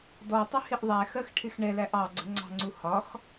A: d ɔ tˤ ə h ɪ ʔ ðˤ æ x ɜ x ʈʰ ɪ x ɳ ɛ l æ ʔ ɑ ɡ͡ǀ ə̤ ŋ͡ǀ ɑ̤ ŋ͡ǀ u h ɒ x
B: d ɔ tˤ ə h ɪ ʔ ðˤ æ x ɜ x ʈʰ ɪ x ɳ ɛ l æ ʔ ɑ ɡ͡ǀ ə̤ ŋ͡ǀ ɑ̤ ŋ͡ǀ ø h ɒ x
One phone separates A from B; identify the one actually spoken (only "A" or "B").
A